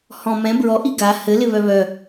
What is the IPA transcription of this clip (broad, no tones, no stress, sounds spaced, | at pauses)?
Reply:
h ɔ̃ m ɛ̃ b ɹ ɔ ʔ i ɡ a h ɘ l ɪ β œ β œ